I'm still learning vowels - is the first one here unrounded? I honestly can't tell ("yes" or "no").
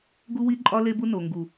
no